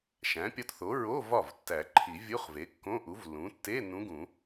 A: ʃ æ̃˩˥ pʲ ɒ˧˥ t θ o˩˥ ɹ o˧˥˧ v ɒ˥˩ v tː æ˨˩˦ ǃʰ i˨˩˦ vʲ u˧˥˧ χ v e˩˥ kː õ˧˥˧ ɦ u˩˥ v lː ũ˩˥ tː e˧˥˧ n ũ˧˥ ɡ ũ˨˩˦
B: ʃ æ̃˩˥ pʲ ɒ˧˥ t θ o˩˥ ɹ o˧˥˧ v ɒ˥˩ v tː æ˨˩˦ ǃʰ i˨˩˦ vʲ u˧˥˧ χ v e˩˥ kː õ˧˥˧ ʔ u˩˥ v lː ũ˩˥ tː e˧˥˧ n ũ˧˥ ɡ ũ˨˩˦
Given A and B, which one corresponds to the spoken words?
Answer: B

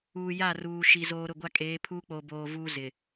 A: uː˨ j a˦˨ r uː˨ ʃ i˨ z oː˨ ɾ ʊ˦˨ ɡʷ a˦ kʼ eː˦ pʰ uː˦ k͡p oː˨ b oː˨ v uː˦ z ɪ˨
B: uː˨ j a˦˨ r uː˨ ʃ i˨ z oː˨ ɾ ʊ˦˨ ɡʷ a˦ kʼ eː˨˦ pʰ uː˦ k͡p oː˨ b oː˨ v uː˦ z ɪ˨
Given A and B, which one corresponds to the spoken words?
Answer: B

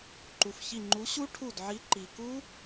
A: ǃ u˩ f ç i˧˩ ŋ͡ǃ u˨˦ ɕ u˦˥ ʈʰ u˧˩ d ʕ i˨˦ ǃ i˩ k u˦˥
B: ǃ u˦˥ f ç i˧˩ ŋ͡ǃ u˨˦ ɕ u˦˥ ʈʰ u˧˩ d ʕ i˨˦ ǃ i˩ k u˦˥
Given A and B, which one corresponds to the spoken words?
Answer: A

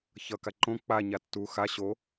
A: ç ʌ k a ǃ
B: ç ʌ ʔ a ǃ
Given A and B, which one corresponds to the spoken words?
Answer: A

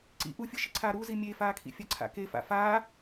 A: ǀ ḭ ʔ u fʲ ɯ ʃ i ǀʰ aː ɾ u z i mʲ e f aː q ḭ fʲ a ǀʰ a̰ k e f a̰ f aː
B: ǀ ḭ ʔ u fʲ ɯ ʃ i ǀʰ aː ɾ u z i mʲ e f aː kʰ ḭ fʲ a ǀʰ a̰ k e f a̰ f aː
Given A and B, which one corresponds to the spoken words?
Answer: B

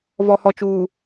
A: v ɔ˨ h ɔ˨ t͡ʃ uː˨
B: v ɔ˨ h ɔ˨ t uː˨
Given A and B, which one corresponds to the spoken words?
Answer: A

